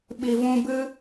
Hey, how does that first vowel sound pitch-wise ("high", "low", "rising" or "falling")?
low